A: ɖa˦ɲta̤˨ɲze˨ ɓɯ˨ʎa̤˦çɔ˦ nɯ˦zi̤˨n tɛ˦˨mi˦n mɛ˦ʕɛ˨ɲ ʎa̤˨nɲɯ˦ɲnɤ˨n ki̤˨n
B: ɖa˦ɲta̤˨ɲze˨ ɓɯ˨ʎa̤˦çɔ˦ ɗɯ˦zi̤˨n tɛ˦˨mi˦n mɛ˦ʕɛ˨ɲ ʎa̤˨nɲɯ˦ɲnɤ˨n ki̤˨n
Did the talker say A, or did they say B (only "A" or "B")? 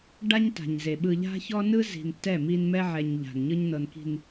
A